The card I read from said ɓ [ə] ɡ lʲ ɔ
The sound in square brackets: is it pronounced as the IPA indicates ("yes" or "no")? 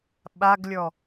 no